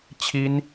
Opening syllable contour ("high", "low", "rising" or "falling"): high